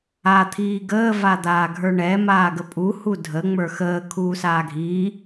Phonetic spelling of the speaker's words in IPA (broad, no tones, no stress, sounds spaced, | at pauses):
a t̪ʰ iː ɡ əː v a d̪ aː ɡʱ ə˞ ɳ ɛ m aː ɡ ə pʼ u h u dʱ ə ŋ͡m ə˞ x əː kʰ uː s aː ɡʱ iː